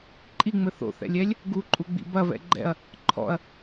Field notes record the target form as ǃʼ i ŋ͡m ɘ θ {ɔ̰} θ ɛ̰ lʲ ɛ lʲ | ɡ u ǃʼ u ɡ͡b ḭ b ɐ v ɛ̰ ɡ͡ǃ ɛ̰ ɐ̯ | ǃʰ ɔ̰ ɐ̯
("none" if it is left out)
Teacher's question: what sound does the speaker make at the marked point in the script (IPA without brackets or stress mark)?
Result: o̰